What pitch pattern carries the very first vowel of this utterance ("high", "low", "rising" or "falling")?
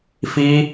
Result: high